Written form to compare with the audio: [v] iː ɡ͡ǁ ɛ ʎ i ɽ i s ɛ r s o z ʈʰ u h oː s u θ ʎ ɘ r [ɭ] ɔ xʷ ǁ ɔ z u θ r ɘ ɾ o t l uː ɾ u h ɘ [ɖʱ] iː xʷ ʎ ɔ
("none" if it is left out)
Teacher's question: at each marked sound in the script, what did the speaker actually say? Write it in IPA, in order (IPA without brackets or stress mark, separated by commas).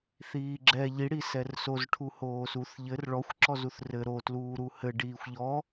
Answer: θ, ɭ, ɖ